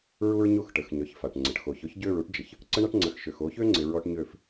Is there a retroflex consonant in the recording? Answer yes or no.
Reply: yes